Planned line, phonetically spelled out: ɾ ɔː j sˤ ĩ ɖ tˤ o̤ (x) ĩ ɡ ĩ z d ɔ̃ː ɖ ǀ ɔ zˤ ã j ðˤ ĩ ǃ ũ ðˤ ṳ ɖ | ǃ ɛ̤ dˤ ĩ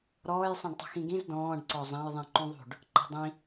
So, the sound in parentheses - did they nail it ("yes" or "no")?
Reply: yes